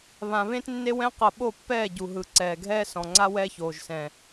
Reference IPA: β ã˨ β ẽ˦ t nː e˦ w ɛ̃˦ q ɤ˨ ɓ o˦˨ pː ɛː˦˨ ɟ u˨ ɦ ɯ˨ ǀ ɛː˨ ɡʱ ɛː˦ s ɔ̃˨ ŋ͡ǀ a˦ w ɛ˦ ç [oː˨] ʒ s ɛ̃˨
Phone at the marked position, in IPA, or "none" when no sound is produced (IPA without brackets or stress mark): oː˨